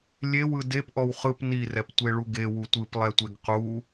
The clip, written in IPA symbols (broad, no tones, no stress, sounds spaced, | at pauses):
lʲ e w ɯ d e p ʔ ɔ w χ ɯ p n i r ɛ p tʷ e ɭ u ɡ e w u tʷ ɯ p lˠ ɛ tʷ e ɡ q u